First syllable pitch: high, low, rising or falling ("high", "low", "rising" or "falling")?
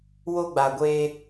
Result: high